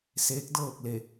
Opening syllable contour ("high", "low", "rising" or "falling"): rising